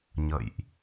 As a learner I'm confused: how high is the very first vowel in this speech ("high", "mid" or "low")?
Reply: mid